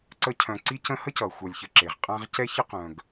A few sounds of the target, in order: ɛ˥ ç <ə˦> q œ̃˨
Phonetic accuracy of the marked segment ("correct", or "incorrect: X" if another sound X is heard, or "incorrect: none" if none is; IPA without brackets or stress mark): incorrect: ə˥